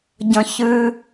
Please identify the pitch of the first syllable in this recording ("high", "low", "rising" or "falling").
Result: high